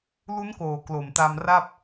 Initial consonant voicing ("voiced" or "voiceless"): voiced